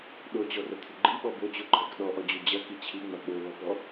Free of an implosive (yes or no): no